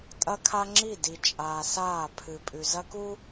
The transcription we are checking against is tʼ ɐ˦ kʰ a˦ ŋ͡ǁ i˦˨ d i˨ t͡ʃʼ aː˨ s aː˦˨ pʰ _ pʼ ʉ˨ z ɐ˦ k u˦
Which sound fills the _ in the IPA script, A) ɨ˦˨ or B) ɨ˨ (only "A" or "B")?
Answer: B